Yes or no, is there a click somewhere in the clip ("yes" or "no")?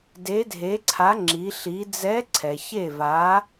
yes